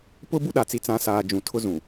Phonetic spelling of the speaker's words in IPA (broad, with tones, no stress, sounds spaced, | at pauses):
p ʊ˦ b u˦ ɗ a˨ t͡s i˨ t͡s ã˨˦ s aː˨ d͡ʒ ũ˨ tʰ ʊ˦ z ũ˨